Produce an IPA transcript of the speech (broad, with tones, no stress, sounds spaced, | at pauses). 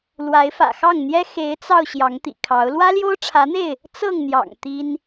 l w a˨˦ ɪ̯ f ä̰˨˩ x ɑ˥˨ ŋ n̪ j ɛ˦ x e˨˦ ɪ̯ t͡s ɑ˧ ʊ̯ ɕ j ɑ˨˦ ŋ t̪ ḭ˨˩ kʰ ɑ˨˦ ʊ̯ l w ä˦ l j o˦ ʊ̯ ʈ͡ʂʰ ä˨˦ n̪ e˥˨ ɪ̯ | t͡s ɤ˥˨ ŋ n̪ j ɑ̰˨˩ ŋ t̪ i˦ n